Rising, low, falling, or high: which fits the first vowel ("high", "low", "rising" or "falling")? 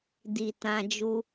low